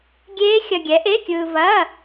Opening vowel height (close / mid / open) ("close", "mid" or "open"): mid